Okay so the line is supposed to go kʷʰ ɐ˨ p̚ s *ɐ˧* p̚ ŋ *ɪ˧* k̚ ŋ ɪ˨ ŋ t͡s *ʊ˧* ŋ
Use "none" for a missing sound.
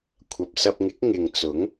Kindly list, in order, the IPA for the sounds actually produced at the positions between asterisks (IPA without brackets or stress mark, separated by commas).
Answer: ɐ˧, ɪ˨˥, ʊ˨˥